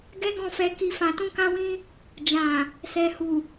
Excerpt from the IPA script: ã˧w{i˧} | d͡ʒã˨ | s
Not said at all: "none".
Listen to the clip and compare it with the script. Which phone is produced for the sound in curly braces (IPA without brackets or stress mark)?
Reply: ĩ˧